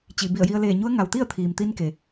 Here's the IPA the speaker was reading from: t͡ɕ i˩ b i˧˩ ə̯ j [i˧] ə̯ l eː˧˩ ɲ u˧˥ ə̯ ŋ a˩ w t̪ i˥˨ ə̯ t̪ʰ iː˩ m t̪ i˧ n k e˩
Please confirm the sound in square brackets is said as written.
yes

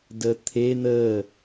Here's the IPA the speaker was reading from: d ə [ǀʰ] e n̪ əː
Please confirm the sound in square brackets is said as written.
no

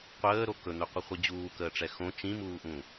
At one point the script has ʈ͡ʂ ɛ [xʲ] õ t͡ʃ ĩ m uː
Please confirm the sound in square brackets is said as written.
no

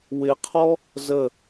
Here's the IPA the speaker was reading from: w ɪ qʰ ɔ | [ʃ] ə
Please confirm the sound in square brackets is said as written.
no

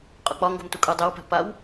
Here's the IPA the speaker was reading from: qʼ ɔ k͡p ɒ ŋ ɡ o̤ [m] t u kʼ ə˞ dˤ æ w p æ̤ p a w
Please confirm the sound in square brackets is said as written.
yes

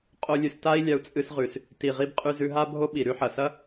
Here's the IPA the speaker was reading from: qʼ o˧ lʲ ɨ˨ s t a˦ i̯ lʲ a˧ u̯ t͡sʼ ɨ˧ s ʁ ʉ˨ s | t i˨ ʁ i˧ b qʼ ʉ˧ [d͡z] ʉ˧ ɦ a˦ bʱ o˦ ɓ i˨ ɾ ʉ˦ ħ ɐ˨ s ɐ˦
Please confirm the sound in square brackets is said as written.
no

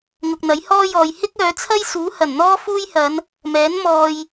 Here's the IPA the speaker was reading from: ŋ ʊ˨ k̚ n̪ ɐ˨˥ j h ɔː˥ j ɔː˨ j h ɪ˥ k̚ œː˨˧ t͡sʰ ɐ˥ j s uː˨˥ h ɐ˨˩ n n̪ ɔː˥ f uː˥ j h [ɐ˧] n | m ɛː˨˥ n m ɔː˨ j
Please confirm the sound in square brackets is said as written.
no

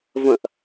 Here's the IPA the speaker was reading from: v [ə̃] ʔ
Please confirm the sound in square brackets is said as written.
yes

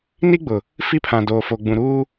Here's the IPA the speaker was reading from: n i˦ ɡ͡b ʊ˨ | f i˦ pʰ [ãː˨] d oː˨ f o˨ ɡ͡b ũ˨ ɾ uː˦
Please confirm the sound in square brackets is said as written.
no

